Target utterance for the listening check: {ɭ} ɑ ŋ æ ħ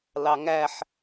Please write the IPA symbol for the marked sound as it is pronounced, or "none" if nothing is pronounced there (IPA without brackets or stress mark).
l